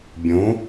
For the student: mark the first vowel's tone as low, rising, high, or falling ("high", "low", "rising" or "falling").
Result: rising